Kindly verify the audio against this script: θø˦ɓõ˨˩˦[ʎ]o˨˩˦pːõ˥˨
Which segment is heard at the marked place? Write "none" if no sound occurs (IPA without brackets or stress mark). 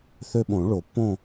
ɭ